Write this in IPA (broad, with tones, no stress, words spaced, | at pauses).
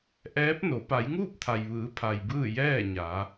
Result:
ʔɛː˧˥p̚no˩˧ pa˩˧jŋuː˥˨p̚t̪ʰa˩jʋɯː˩˧ pʰa˩jbɯː˥˨ jɛː˥˨ɲa˩˧